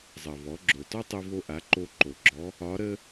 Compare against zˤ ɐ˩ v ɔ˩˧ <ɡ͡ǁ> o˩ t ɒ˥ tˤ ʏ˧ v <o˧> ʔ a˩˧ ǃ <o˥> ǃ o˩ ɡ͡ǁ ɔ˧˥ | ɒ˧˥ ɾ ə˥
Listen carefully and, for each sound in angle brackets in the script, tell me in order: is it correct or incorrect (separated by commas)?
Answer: correct, correct, incorrect